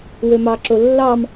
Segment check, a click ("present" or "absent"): present